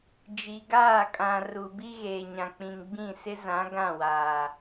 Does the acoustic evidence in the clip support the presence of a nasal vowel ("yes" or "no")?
yes